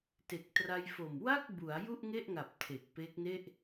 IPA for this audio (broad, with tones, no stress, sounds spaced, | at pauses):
t e˨˩ k̚ t r a˧ j f o˨˩ m w a˥˩ k̚ b u˩˦ a̯ j u˥˩ ʔ ŋ e˥˩ ʔ ŋ a˨˩ p̚ tʰ e˨˩ k̚ p e˦˥ k̚ n e˥˩ ʔ